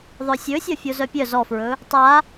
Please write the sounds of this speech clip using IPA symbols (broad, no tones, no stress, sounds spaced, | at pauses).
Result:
ðˤ œ sʲ ɵ sʲ ɒ fʲ o z œ pʲ œ z ɔ f ɹ ɵ | tˤ a